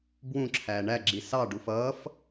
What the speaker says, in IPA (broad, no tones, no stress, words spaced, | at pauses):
bwũǁʰæː ɳæɡ͡ǁi sɑɖuf ʌːf